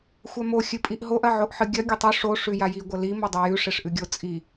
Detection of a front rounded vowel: absent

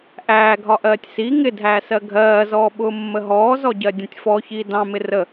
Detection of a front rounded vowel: absent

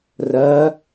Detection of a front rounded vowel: absent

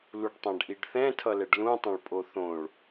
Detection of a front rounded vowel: absent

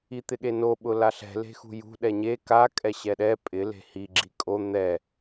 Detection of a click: present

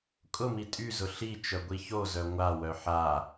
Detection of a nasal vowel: absent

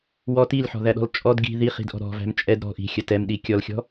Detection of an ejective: present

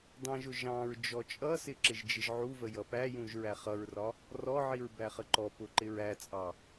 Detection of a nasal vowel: present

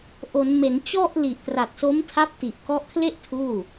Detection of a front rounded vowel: absent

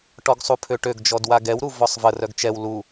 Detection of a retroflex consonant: present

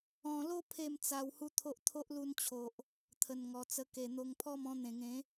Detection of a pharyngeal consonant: absent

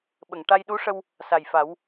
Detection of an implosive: present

